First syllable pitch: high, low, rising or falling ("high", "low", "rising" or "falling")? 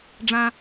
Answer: low